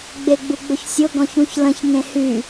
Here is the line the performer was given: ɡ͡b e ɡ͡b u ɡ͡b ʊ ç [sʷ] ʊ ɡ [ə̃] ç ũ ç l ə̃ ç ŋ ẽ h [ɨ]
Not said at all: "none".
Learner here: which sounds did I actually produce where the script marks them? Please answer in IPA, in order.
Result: sʲ, ɔ̃, y

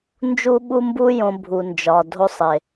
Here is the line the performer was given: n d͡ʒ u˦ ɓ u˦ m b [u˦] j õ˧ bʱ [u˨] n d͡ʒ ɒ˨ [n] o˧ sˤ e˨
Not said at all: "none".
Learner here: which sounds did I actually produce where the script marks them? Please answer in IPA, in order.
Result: u˦, u˨, dʱ

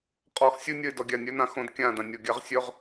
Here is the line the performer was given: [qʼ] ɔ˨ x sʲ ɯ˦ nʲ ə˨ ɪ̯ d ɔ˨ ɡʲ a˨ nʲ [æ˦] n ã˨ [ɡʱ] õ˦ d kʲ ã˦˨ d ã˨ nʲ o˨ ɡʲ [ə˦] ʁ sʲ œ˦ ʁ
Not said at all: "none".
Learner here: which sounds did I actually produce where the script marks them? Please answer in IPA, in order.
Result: qʼ, œ˦, x, a˦

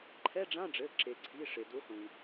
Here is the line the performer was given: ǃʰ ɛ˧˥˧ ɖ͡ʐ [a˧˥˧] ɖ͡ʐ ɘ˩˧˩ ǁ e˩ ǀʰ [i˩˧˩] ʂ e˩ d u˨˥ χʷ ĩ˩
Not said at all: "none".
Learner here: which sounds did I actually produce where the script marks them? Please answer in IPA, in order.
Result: ã˧˥˧, i˩˧˩

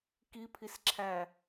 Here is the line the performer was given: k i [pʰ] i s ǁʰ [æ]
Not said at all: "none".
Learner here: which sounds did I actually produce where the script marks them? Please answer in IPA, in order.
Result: pʰ, æ

